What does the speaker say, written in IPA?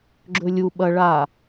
ɡ͡ǁ ɵ lʲ u ɓ ɐ ɭ a

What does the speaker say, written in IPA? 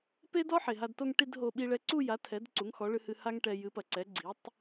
p e˥ d ɔ˥ ħ e˩ ɦ a˧ d t o˥˧ ŋ ʈ i˥˧ d ɦ o˧ ɓ i˧ ɭ ɛ˧ ǀ u˥˧ j a˩˥ tʰ ɛ˩˥ d ǀ u˩˥ ŋ x ɔ˩˥ ɭ ɨ˧ h ɨ˧ h a˥ ŋ ʈ ɛ˧ j ɨ˩˥ p ɐ˩ ǀ ɛ˩˥ ɡ͡ǀ i˩˥ tˤ

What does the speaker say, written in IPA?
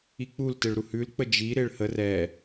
i k͡p u l t ɪ ɭ ɾ u h ʉ l k͡p ə d͡ʒ i ɾ ɪ ɭ h ə r ɛ

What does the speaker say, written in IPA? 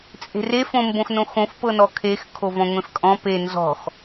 t͡sʼ e̤ r e f õ m b õ x n õ x õ f p ɤ n ɔ kʰ e x kʰ o v ɔ̃ ŋʷ ẽ f kʼ ɔ̃ p e n z ɔ̤ x

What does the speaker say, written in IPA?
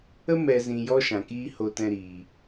ə˦ m ɛ˨ z ĩ˨ j ɔ˦ ʃ ã˨ k iː˦ h o˧ t ɛ̃˧ ɾ iː˨

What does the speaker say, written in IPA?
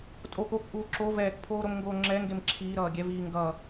tʼ o k o k ʔ uː ǁ o v ɛː k pʰ oː ɾ o m ŋ ɡ oː ŋ͡ǁ ɛ ŋ ɡ e m ǁʰ iː ɾ ʌː ɡʲ ɛ v iː ŋ ɡ ʌ

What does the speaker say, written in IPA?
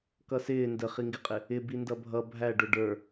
k ʌ s ɪː n d ə χ i ŋ ɡ ɪ qʼ ɪ | ɪ b i n d ʌ bʱ ʌ bʱ æ ɖ ʊ ɖ ə˞

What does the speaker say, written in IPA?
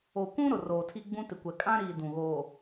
o˨ kʷ ũ˦ ɾ ʊ˨ r oː˨ tʰ i˦ ɡ͡b ũ˦ t ɪ˨ kʷ ɛ˨ kʼ ã˦ ɾ iː˨ d ũ˨ ɣ oː˨

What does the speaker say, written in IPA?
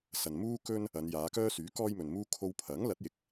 s ɐ˨ n m uː˥ k ɵ˥ n | ɐ˨˧ n j aː˨˧ k œː˥ s yː˨˥ k ɔː˥ j m ɵ˨ n m uː˥ kʰ o˧ w pʰ ɐ˨˥ ŋ l ɐ˨˥ t̚ j ɪ˨˥ k̚

